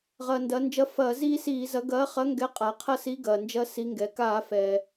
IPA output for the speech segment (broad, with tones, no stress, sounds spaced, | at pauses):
ʁ ɐː˩ n d ɐ˩˧ n d͡ʒ ɐ˨˥ f ɐː˧˩˧ z iː˦ s iː˧˩˧ z ɐ˨˥ ɡ ɐː˨˥ χ ɐ˨˥ ŋ ɡ ɛ˨˥ qʼ a˩˧ qʰ ɐ˦ s i˨˥ ɡ ɐː˩ n d͡ʒ ɐ˦ s i˨˥ ŋ ɡ ɛ˩ k aː˧˩˧ f ɛː˩